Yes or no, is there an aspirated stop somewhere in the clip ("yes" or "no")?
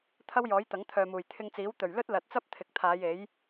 yes